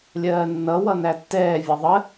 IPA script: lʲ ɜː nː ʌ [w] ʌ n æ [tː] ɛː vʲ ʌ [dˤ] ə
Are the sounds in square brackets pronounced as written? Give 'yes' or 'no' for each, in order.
yes, yes, no

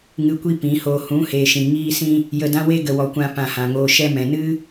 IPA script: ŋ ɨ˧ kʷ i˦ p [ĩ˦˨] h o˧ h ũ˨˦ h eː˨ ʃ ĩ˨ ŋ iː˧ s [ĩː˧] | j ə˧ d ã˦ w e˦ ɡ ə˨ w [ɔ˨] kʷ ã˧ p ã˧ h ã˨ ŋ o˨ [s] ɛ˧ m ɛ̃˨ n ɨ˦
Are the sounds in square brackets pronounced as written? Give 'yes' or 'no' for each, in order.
no, no, yes, no

